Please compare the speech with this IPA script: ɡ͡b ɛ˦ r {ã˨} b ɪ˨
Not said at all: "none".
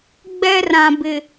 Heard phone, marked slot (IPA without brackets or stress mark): ã˨